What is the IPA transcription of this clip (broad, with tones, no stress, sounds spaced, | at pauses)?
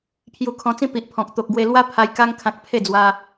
pʰ j u˧ kʰ ɔ̃˧ t͡s ĩ˦ p i˨ ʔ pʰ ɔ̃˨ k̚ t̪ o˨ k̚ ɡ w e˧ l w a˦ pʰ a˧ j k a˧ ŋ kʰ ã˨ k̚ pʰ e˥˧ d͡z w a˧